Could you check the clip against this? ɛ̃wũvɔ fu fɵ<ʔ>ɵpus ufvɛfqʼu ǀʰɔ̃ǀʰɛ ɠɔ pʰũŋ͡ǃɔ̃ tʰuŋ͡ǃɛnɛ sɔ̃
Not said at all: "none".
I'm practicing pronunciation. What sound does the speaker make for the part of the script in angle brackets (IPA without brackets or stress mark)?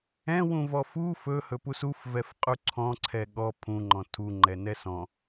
h